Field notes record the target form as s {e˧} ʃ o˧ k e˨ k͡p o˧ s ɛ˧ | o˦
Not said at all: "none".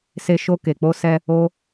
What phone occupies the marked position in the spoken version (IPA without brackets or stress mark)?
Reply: e˧